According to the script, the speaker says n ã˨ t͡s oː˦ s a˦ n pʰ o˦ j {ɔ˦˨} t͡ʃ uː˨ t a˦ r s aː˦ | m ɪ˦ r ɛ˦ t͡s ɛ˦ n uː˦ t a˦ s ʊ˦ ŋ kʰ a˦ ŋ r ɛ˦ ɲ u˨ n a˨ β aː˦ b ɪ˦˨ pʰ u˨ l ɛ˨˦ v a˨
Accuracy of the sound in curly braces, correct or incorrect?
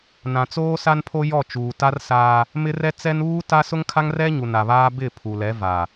correct